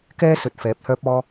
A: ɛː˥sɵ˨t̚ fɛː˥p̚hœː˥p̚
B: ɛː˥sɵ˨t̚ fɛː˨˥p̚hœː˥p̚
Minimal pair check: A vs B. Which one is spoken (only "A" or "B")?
B